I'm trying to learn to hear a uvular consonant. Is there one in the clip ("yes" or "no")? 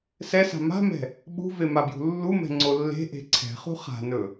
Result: yes